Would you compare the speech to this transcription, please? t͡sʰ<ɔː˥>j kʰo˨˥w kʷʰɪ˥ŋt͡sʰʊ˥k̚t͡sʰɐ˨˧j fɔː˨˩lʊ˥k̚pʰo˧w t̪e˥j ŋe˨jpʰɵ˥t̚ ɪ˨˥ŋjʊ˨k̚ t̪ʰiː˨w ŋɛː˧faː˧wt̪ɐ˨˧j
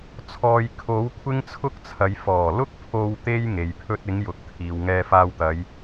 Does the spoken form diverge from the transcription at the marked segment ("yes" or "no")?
yes